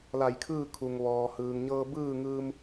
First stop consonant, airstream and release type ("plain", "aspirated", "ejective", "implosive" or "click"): aspirated